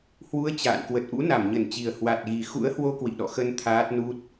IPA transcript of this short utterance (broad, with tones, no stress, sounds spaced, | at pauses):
h w u˨˦ ə̯ t͡ɕ a̰ː˧˨ n k w ə˨˩ t̚ ʔ ṵ˧˥ n a˧˩ m ɲ ə˧˩ n t͡ɕ i˨˩ ə̯ h w a˨˩ t̚ ɣ i˨˩ x ṵ˧˥ ə̯ h w o˧ k w ḭ˧˨ ɗ ɔ̰˧˨ x ə˧ n t̪ʰ aː˦˥ t̚ n u˦˥ t̚